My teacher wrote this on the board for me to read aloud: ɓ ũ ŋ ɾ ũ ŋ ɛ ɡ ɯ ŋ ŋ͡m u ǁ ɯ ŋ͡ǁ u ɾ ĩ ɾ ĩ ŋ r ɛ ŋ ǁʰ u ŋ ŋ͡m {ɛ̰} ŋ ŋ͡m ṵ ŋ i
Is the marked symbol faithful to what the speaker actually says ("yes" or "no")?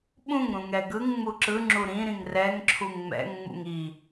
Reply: yes